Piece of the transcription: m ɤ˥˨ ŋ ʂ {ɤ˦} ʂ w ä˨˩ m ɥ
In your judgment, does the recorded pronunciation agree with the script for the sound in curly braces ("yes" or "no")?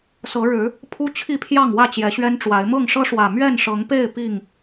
yes